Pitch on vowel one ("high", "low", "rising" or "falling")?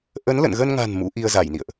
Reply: rising